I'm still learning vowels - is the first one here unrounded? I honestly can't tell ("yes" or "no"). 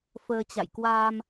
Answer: yes